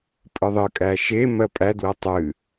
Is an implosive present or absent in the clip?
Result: absent